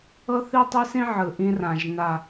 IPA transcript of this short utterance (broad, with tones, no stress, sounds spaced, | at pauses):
ɤ˦ θ i˦ tˤ e˦ s ĩ˦ ʕ ɯ˨ ʔ ĩ˦ r ã˨ ʒ n a˨